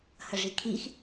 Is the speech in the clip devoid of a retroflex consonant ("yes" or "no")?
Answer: no